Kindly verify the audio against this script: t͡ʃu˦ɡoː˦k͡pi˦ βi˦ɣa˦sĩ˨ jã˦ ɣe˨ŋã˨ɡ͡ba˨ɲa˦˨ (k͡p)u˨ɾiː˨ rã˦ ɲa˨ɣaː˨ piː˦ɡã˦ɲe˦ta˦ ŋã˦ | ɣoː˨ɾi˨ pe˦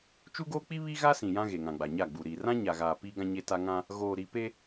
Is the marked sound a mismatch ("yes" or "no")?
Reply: yes